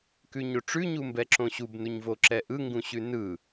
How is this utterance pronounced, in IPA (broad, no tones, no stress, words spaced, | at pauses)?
kʉɲoʈ͡ʂʉ ɲumbɛǁõɕub nuɲvoǁɛʔɯ ŋɡũɕʉnɯ